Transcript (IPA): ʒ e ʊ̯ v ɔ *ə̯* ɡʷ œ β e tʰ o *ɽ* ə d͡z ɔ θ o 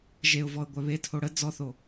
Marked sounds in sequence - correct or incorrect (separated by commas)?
correct, correct